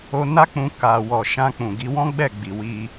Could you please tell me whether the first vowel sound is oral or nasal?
oral